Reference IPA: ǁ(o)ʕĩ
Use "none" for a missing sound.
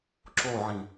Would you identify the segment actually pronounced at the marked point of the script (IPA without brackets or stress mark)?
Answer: o